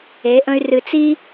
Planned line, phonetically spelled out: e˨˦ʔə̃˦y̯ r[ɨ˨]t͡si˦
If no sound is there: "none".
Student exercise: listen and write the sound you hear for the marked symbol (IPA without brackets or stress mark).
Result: ɨ˨